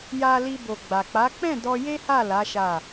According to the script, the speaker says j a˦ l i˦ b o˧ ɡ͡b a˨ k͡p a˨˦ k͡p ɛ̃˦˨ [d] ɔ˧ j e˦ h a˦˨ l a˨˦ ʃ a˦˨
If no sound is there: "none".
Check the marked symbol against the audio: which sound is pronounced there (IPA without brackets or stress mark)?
d